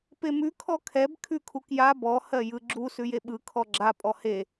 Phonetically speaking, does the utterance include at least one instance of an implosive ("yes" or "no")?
yes